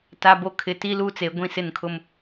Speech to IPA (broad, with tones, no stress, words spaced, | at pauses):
ta˨bo˨ kʰɪ˨ti˦ luː˦t͡se˨ ɡʷĩ˦˨sɪ˦˨nkʰʊ˦m